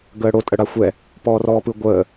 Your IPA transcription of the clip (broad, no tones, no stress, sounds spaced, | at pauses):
ɡ əː ɽ o tʼ ə ɽ a xʷ ɛ | p ɔː r ɔː p ɯ ɡʷ əː